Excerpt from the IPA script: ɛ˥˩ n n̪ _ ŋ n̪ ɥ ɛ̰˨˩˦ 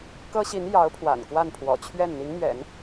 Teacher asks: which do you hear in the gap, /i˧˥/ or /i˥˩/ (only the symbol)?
i˧˥